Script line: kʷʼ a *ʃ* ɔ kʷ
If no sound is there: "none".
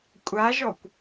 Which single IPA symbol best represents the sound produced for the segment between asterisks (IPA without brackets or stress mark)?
ʒ